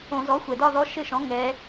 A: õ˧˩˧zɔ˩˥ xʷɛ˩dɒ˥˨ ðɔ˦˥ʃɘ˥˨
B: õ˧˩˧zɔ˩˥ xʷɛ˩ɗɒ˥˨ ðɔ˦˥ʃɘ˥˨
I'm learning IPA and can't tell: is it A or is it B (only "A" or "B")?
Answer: A